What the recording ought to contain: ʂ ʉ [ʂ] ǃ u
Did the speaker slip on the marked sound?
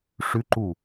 yes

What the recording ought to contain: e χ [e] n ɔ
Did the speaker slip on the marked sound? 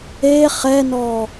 yes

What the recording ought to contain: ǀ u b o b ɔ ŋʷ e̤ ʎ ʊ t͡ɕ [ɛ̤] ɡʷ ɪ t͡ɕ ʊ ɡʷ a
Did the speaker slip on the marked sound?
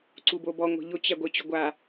yes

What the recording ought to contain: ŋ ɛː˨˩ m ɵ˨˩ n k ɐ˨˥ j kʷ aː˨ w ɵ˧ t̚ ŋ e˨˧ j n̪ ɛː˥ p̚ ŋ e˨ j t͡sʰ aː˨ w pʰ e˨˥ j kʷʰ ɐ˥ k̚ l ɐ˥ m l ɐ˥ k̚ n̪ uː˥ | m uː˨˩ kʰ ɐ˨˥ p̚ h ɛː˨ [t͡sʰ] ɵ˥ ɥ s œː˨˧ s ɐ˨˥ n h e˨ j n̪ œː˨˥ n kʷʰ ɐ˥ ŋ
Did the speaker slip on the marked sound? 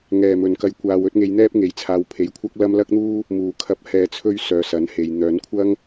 no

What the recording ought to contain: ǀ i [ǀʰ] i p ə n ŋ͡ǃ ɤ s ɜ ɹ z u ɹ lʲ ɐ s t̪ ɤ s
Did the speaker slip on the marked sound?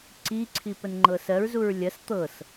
no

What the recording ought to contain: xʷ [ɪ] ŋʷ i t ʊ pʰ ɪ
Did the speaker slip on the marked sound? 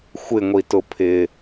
no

